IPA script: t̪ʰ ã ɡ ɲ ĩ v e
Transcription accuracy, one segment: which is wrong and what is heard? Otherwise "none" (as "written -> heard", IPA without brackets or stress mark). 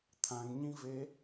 none